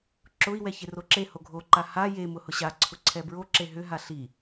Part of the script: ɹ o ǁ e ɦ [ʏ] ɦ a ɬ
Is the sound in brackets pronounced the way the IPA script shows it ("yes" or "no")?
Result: yes